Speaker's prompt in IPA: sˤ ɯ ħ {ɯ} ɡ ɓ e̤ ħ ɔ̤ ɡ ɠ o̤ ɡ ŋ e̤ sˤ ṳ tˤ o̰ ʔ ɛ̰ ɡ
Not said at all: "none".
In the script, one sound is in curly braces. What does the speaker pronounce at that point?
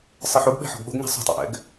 u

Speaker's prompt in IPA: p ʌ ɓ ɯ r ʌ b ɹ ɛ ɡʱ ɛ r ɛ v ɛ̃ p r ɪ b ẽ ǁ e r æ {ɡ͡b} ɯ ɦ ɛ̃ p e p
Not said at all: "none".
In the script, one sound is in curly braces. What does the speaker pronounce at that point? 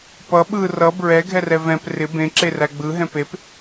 ɡ͡b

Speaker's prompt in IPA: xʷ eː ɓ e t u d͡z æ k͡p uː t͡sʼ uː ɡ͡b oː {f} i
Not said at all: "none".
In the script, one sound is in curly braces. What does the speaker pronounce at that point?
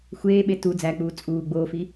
f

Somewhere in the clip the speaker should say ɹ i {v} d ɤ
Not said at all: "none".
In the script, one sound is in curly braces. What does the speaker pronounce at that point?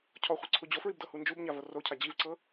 b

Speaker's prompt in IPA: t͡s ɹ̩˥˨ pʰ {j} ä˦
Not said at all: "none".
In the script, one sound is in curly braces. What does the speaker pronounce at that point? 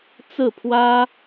w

